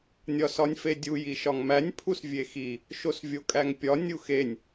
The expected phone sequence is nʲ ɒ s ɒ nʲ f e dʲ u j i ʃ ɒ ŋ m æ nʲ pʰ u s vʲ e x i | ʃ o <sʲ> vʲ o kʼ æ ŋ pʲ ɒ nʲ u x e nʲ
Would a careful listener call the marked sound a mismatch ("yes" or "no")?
yes